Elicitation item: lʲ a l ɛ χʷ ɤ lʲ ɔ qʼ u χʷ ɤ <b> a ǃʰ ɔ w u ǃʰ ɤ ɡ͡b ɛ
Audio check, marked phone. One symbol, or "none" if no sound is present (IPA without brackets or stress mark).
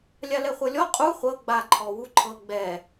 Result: ɡ͡b